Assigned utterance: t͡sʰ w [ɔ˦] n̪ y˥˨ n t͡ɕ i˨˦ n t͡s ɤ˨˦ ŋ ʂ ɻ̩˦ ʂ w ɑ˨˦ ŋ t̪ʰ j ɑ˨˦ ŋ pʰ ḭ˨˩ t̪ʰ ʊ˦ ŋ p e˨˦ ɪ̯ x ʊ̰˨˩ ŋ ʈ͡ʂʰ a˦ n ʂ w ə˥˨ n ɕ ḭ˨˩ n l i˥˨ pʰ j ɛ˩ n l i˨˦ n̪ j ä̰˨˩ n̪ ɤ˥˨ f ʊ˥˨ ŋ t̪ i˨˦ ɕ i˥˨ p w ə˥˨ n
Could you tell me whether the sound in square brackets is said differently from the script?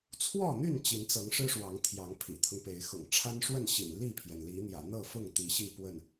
yes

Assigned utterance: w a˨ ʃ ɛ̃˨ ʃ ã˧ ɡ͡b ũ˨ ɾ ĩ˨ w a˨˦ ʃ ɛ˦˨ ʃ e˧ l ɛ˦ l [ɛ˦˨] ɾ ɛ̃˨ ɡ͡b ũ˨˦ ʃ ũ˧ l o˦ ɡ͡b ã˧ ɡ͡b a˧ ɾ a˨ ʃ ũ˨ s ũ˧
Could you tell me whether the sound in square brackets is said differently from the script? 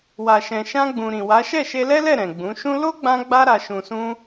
no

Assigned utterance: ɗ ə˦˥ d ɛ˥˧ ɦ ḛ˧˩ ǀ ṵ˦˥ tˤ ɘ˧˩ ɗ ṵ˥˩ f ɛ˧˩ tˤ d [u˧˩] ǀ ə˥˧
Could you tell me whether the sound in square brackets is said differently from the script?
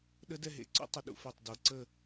yes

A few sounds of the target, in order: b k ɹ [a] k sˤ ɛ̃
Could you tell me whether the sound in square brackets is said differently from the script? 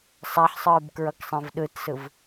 yes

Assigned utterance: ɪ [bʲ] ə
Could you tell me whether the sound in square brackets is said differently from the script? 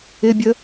no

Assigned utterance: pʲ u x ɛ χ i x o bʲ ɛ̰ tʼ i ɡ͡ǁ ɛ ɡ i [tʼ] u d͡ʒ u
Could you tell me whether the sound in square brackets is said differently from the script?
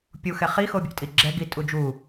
no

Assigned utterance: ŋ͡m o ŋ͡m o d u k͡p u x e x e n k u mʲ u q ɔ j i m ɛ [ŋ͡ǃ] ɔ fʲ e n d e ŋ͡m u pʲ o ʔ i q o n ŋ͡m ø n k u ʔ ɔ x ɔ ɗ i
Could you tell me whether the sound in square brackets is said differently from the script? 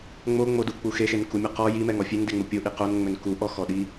yes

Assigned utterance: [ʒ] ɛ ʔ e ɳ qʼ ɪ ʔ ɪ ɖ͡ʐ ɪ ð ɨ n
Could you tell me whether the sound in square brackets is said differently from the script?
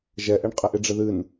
no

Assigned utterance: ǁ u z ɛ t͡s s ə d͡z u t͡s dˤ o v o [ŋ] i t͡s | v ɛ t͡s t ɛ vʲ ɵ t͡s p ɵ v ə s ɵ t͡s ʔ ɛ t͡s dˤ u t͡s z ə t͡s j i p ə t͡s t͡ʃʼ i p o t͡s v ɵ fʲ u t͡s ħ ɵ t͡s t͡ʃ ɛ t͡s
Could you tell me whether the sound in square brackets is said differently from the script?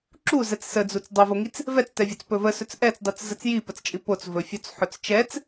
no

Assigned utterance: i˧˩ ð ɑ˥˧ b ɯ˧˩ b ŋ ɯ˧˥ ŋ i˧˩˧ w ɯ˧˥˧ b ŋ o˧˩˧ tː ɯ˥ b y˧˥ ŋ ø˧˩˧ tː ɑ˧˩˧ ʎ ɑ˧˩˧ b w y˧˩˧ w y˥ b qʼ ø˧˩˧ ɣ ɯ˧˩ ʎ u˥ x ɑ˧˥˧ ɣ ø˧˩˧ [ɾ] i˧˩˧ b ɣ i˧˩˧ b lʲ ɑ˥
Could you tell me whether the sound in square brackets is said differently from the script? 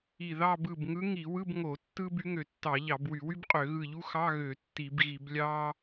yes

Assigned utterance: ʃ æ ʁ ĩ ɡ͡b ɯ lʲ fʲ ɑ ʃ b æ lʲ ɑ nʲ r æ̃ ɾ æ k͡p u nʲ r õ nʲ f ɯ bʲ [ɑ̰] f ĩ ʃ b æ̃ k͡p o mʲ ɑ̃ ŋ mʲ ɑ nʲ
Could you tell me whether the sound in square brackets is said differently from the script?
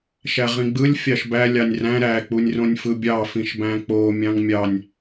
yes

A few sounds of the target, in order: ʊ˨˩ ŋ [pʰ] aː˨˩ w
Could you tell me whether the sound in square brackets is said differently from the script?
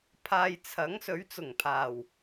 no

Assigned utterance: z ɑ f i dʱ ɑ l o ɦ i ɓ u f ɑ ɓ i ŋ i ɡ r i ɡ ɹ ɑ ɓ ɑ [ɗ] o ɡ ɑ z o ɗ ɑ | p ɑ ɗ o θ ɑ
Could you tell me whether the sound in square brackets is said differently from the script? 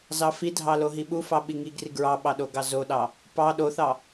no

